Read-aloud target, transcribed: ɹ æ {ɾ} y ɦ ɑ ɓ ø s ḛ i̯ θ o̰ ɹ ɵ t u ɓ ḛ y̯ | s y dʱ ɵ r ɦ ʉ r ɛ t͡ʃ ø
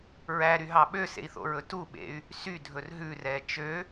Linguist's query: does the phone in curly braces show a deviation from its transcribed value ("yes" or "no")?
no